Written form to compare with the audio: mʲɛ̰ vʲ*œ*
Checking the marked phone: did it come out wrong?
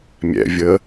yes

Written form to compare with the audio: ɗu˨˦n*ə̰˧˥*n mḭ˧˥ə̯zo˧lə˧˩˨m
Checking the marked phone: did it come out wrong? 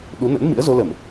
no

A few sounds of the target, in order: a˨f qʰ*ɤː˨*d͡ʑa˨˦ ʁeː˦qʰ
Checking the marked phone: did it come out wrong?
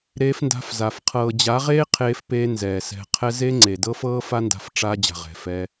no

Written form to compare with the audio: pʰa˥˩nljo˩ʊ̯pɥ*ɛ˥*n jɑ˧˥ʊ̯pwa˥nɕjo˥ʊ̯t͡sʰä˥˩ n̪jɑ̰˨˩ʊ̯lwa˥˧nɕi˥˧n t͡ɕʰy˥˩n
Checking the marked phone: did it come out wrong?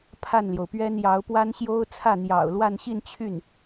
no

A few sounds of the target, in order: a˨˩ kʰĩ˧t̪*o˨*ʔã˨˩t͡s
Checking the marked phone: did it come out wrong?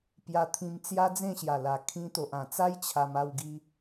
no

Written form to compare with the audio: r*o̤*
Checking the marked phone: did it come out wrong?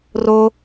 yes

